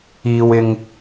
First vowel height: high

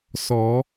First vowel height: mid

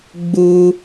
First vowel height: high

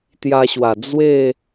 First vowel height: low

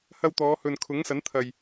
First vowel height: low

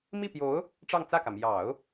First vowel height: high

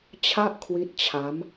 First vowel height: low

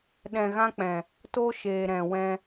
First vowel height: mid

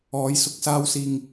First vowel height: mid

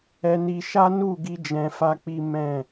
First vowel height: mid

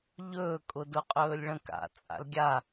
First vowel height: mid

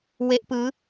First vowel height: mid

